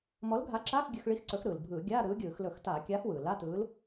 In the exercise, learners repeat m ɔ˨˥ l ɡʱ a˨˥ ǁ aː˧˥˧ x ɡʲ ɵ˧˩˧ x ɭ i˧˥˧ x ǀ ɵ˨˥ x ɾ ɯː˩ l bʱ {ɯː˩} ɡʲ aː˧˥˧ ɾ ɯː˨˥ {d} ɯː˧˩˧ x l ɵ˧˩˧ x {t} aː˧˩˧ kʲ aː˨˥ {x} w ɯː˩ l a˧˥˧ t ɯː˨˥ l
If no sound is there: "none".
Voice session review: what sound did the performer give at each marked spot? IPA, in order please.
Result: ɯː˧˩˧, ɡʲ, t, x

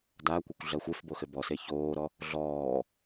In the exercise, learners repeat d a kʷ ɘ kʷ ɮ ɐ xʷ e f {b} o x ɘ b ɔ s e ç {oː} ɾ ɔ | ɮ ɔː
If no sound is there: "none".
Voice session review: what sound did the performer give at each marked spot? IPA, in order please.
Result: b, oː

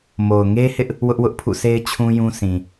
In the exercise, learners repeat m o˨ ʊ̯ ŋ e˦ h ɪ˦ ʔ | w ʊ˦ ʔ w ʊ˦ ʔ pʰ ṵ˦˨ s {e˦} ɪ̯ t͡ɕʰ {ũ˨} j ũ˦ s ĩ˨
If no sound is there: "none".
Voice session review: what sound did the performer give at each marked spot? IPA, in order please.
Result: e˦, ũ˦

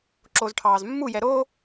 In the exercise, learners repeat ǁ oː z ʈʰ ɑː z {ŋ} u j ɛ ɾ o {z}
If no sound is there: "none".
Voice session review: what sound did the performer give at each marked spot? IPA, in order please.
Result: mː, none

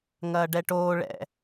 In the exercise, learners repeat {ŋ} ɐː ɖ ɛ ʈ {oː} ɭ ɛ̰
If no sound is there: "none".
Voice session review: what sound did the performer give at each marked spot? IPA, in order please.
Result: ŋ, oː

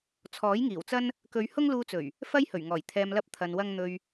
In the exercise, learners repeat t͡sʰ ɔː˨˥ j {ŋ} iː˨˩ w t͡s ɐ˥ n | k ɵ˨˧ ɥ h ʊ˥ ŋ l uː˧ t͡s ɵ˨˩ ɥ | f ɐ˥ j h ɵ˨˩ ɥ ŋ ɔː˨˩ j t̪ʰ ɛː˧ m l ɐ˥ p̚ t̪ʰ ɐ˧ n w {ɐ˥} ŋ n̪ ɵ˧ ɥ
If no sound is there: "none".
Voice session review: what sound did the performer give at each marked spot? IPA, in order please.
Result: ŋ, ɐ˥

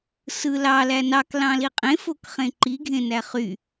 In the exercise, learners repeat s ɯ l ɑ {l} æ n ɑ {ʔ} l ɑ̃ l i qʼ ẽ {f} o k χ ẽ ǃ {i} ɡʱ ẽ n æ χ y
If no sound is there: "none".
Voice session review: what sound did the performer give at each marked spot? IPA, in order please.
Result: l, k, f, i

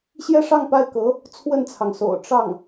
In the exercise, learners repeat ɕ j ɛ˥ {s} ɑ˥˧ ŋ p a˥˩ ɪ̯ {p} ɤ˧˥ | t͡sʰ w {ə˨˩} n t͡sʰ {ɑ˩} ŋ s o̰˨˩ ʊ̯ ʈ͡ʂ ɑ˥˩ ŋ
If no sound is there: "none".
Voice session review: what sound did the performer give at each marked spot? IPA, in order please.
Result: ʂ, k, ə˥˩, ɑ˩

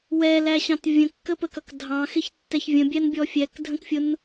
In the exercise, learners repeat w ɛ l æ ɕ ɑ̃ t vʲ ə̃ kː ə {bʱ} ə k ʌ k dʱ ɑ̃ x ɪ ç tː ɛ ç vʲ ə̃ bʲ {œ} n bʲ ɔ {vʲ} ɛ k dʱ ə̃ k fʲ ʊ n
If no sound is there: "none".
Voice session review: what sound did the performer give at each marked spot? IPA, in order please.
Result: p, æ, fʲ

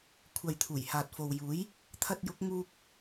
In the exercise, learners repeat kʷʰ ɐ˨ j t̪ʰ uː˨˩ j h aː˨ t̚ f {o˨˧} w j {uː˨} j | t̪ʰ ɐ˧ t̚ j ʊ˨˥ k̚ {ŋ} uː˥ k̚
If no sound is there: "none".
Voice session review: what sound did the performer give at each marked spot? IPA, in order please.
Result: o˨, uː˨˥, ŋ

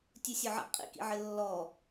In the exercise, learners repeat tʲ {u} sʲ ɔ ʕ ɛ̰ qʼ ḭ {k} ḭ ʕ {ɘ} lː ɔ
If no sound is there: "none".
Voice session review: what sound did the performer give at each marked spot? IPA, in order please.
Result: u, k, ɘ

